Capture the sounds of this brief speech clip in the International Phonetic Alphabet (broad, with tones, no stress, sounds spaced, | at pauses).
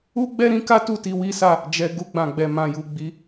u˦ ɡ͡b ɛ˦ ɾ ĩ˦ k a˦ t u˦˨ t i˧ w i˦ s a˦˨ | d͡ʒ ɛ˧ ɡ u˧ ɡ͡b ã˨ ɡ͡b ɛ˨ m ã˨ j u˨ ɡ͡b i˨˦